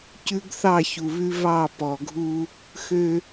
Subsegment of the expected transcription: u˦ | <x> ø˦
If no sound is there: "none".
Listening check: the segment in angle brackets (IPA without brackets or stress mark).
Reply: x